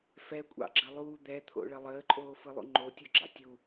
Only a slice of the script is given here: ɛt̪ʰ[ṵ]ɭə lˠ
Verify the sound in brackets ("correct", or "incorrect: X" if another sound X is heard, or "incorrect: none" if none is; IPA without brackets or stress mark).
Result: incorrect: o̰